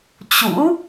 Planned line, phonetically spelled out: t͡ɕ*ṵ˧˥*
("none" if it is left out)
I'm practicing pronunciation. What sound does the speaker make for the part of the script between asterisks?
ṵ˧˥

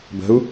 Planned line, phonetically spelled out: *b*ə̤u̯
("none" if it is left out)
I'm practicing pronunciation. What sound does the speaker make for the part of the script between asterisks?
b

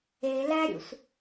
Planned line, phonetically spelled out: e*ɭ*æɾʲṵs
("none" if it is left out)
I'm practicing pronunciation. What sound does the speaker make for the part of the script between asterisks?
l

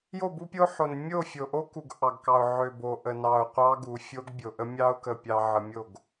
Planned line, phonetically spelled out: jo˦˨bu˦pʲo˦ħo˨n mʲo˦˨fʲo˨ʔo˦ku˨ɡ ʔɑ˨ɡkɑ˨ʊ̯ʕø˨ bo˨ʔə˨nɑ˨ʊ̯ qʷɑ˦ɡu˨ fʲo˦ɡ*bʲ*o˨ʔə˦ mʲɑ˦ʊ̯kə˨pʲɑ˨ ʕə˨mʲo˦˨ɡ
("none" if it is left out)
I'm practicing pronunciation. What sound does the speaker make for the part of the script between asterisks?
bʲ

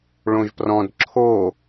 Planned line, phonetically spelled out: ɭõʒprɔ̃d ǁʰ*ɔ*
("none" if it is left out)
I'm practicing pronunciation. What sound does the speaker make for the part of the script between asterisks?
o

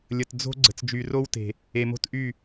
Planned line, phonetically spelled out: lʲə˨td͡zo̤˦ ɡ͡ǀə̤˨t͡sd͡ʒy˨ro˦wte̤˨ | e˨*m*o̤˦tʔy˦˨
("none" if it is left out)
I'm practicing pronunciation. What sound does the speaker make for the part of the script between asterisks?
m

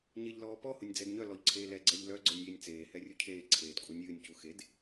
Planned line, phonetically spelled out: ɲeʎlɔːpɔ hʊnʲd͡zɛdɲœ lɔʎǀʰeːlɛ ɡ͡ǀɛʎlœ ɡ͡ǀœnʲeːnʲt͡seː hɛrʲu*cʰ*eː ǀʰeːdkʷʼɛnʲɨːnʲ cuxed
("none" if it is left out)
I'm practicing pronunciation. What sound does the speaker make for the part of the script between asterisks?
cʰ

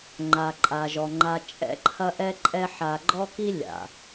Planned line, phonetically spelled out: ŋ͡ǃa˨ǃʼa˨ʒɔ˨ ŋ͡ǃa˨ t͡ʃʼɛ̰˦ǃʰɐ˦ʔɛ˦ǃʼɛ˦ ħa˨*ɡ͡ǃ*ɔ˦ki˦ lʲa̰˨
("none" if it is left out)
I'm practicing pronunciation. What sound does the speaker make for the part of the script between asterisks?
ɡ͡ǃ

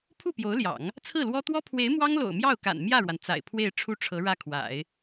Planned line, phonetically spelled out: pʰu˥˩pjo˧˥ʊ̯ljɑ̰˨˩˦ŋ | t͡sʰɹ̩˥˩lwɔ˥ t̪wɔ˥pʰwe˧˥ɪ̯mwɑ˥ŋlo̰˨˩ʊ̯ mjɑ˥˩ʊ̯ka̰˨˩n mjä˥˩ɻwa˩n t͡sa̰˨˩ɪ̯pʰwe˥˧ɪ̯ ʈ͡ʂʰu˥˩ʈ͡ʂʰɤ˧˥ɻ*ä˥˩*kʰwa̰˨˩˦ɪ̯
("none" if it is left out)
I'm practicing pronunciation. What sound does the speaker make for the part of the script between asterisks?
ä˥˩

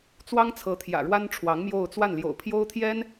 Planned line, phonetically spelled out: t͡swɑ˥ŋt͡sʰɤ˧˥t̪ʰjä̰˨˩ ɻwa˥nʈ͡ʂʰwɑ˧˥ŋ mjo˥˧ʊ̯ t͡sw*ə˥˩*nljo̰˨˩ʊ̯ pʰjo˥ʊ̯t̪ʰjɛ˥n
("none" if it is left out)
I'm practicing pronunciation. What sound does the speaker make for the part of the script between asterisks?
a˥˩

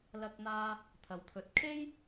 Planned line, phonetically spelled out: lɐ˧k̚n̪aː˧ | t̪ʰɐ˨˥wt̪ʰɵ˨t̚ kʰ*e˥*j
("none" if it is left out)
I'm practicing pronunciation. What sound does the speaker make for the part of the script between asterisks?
e˥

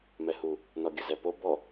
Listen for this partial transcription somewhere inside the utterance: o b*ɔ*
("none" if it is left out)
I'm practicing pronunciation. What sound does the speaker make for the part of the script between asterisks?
ɔ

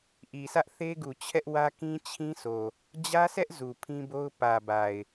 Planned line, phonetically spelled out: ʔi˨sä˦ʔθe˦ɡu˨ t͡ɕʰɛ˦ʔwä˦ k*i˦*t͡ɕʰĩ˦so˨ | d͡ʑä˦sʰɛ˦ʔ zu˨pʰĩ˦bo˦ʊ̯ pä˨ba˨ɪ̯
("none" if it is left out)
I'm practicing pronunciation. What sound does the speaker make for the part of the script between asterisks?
ĩ˦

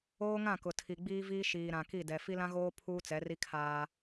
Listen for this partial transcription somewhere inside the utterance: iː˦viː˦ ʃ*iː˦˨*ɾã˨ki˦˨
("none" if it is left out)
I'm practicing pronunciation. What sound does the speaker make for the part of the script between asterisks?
iː˨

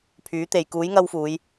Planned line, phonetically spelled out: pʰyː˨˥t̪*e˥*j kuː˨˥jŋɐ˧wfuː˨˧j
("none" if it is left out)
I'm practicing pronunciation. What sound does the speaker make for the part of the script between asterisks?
e˨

